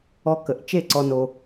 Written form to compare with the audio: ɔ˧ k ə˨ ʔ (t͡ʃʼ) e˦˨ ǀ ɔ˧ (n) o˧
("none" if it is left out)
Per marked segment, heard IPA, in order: t͡ʃ, n

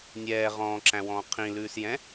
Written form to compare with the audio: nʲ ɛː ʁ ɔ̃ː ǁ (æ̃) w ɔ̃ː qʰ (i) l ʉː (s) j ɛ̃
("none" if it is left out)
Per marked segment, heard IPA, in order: æ̃, ĩ, s

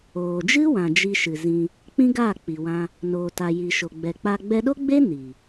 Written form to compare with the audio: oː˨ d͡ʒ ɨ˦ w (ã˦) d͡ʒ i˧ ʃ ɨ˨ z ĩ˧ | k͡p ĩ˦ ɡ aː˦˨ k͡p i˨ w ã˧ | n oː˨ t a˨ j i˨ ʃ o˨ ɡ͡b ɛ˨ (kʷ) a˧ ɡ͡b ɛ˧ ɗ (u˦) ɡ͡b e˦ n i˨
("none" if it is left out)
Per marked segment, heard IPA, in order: ã˨, k͡p, o˦

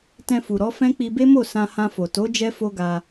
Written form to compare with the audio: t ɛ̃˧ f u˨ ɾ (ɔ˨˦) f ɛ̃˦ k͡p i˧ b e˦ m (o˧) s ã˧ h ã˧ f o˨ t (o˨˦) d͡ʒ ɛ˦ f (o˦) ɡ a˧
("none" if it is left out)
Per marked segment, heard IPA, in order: ɔ˨˦, o˦˨, o˨˦, o˦

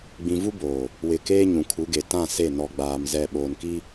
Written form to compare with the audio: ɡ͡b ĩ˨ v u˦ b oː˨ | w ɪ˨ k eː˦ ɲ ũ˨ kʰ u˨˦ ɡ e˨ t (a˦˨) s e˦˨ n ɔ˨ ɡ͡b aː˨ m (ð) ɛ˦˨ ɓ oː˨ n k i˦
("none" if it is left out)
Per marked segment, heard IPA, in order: ã˦˨, z

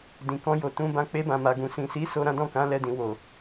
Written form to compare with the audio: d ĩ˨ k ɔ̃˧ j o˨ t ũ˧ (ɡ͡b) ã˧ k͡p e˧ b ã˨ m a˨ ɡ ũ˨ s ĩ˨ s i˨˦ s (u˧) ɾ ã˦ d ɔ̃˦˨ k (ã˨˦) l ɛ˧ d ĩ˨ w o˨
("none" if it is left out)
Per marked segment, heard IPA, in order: b, o˧, ã˨˦

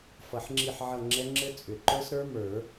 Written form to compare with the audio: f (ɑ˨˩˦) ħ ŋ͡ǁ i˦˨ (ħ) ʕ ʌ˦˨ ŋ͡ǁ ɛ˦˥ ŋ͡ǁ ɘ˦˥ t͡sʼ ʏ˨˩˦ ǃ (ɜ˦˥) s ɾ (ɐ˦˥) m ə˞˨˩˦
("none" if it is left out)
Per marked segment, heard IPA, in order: ʌ˨˩˦, ħ, ə˞˦˥, ə˞˦˥

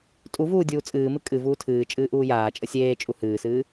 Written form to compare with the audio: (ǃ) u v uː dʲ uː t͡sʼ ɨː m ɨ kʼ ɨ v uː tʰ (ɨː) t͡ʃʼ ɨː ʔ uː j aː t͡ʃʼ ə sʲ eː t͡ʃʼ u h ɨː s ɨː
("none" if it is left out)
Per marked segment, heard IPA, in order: tʼ, ɨː

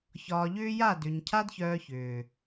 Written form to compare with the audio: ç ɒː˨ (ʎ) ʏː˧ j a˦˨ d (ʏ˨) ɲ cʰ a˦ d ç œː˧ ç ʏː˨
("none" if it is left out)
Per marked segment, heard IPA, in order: ʎ, ʏ˨

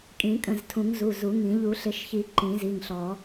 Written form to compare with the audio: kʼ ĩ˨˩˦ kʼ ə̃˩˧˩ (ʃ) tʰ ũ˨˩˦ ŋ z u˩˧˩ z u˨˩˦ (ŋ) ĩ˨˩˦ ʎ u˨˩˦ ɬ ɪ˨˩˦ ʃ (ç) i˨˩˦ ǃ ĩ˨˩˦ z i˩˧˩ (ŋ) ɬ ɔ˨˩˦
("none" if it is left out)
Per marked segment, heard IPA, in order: z, ŋ, ç, ŋ

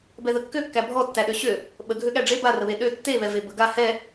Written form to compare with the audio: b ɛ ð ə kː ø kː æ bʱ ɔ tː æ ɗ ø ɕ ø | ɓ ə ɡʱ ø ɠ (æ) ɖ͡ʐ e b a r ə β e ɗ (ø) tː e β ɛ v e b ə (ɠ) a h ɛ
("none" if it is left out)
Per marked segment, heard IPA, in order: æ, ø, ɡ

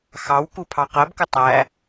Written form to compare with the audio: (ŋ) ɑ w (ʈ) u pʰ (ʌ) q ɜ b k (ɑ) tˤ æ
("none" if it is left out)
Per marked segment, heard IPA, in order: x, k, ɑ, ə

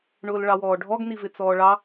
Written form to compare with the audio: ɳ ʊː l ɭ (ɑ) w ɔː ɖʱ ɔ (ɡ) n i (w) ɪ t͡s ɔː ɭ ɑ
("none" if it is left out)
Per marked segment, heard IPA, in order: ɑ, ɡ, v

